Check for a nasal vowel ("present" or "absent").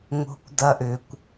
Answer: absent